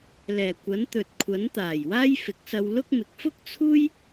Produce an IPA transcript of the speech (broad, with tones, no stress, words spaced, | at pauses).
lɛː˨˩kʷɐ˨˥nt̪ɵ˨t̚kʷʰɐ˨˥n t̪aː˨˩jwaː˥jfɪ˨˥k̚sɐ˧w lʊ˥k̚ mɪ˨˥k̚fʊ˥k̚t͡sʰuː˥j